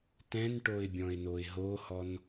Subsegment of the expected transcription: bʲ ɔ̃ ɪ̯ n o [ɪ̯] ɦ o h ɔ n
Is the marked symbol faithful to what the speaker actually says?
yes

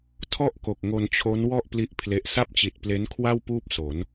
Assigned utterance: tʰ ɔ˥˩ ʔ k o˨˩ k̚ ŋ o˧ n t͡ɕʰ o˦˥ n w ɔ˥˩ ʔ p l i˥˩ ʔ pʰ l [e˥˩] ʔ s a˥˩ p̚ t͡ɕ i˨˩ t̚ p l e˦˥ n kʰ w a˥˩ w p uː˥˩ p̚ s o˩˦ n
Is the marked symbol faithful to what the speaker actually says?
no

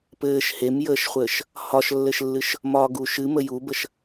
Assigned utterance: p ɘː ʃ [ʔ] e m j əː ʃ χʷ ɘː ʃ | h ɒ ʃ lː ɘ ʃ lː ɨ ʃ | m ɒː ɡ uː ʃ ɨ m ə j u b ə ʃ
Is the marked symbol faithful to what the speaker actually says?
no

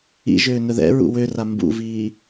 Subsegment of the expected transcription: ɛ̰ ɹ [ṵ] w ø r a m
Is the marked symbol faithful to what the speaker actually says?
yes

